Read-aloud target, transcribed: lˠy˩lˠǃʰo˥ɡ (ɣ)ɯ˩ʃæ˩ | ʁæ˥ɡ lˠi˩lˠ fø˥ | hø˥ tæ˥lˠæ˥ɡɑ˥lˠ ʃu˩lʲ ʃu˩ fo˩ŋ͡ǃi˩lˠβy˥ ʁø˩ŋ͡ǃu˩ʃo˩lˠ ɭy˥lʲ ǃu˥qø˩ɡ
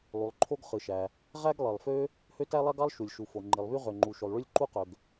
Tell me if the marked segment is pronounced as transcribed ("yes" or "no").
no